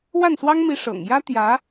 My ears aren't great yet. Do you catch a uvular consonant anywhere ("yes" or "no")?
no